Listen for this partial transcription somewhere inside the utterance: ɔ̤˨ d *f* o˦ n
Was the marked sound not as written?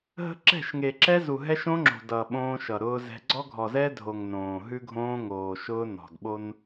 yes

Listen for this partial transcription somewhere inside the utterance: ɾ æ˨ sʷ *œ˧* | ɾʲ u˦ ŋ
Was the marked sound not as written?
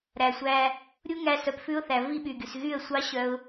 yes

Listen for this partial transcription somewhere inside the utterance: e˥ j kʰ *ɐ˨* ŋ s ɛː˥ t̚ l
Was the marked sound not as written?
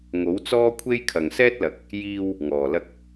no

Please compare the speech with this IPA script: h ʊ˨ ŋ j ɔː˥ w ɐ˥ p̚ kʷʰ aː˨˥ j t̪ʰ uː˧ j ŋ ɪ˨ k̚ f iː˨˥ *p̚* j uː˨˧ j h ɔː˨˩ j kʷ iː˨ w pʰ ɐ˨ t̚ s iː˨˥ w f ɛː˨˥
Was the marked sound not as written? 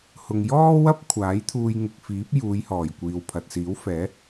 no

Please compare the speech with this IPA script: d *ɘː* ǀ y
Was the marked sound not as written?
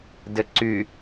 yes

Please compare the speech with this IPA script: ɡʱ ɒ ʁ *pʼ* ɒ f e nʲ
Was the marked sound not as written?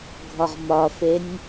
yes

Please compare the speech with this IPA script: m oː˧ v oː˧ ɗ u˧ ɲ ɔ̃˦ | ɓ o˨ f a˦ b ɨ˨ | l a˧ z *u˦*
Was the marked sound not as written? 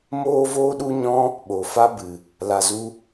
no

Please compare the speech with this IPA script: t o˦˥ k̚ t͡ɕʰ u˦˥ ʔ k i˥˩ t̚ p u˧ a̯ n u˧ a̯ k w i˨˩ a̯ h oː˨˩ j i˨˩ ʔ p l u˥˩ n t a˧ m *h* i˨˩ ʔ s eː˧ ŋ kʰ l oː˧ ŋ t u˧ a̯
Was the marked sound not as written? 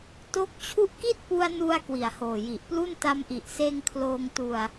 yes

